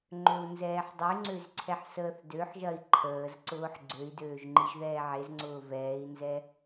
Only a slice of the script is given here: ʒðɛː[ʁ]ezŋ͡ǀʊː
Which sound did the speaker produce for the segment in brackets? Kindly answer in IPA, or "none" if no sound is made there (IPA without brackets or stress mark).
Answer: ʕ